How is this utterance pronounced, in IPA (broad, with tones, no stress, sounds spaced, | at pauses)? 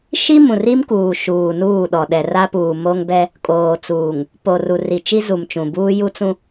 ʃ i˦ m ũ˨ r i˦ m k uː˨ ʃ uː˨ n uː˦˨ ɗ ɔ˨ ɗ ɛ˨ r a˦ p uː˨ m o˦ ŋ b ɛ˦ | kʼ oː˨ t͡s uː˨ ŋ | p o˨ r u˨ r i˨ t͡ʃ i˦ z u˨ m t͡ʃ ũ˨ b uː˦ j u˦ t͡s ũ˦